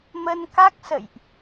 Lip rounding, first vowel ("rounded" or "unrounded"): unrounded